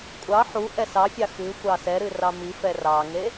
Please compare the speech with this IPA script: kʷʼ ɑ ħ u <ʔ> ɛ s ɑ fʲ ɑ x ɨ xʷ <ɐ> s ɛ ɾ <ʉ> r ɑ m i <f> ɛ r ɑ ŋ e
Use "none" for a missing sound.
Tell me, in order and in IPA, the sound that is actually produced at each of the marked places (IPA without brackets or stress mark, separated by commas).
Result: ʔ, ɑ, ɨ, f